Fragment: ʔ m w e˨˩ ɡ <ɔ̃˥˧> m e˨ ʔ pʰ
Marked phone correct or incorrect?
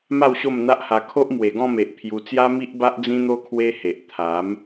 correct